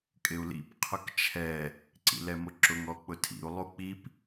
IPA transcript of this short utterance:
kʼ ɪ u̯ l ḭ p qʰ ʊ k t͡ʃʰ ɛ | ǀ ḭ l ɛ m ʊ ǁ ʊ ŋ ɔ k͡p ʊ tʰ ḭ u̯ lˠ u k͡p i p

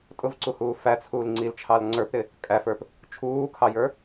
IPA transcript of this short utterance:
tʼ ʊ v ǀ u h uː f æ t͡sʰ uː l ŋ͡ǀ i l t͡ʃʰ ɑ l ŋ͡ǀ ə˞ p ɾ ɪ | kʼ æ f ə˞ p | t͡ʃʰ uː kʰ ɑ j ə˞

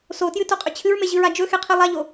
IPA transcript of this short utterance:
s o t j ɨ t o qʼ ɵ t͡ɕʰ ɨ ɹ m e ʑ ɨ ɹ a d͡ʒ ɵ x e qʰ i lˠ a ʎ o

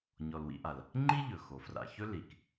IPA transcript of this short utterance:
ɲ ɔ˨ l w ḭ˦ ʔ a˩ l | ŋ͡ǃ i˥ ʎ ɵ˩ x o˩ f r a̰˨ ç ɵ˦ l i˩ k

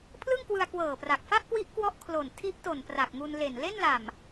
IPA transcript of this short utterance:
pʰ l ɯ˥˩ ŋ k w ɯ˧ a̯ k w ɤː˨˩ p r a˨˩ k̚ f a˥˩ ʔ k w i˦˥ ʔ k w ɔ˦˥ ʔ kʰ l o˨˩ n tʰ i˦˥ ʔ t o˨˩ n p r a˨˩ k̚ ŋ u˧ n l e˨˩ n l e˥˩ n l a˨˩ m

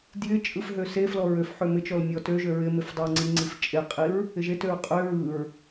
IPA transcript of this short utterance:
d j ɪ t͡ʃʼ ɯ f ɦ ø s e f l ɔ ɹ ø f ħ ø m ɪ t͡ʃ ɔ l mʲ ɔ t ø ʒ ø ɹ ɪ m ɪ f dˤ ɪ ɹ ŋ͡ǀ i ŋ͡ǀ i f t͡ʃʼ e qʼ i ɹ | ɪ ʒ e t ø ɹ qʼ ø ɹ ɯ ɹ

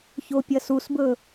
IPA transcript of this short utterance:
ç o pʲ ɐ s u s b ɵ

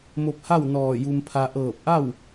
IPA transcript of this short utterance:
m o˧ p̚ h a˥˨ w n ɔː˧˩ j u˧ m pʰ a˧ ʔ ɤː˧˩ p̚ ʔ a˥˨ w

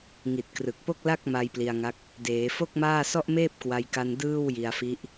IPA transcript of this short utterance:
ŋ i˨˩ t̚ k r ɯ˨˩ k̚ p o˥˩ k̚ l a˥˩ k̚ m a˧ j p l i˧ a̯ ŋ a˦˥ k̚ | d eː˩˦ f o˥˩ k̚ m aː˥˩ s ɔ˥˩ ʔ m eː˥˩ p̚ k w a˧ j k a˧ n d ɯː˥˩ w j i˧ a̯ f i˦˥ ʔ

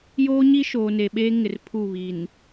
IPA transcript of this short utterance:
j oː˦ ɲ i˦ ʃ oː˨ n e˨ ɓ eː˦ ŋ ɪ˨ r pʰ u˦˨ β i˨ n

